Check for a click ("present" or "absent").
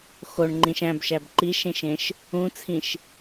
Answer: present